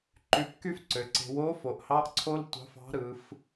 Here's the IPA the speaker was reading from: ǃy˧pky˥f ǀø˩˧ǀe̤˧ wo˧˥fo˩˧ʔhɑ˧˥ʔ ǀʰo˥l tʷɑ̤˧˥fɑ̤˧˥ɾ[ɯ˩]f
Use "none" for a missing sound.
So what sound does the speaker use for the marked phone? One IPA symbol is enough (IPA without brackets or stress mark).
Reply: ɯ˩˧